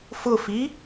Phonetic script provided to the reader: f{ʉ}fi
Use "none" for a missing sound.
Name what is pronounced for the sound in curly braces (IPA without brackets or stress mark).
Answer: ʊ